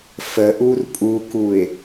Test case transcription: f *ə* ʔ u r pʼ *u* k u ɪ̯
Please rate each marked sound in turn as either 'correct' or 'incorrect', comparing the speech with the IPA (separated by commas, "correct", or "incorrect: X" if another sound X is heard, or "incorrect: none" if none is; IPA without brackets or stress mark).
correct, correct